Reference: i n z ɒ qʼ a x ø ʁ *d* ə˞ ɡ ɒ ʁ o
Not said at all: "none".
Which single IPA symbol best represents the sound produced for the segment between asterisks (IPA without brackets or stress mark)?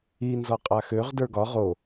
d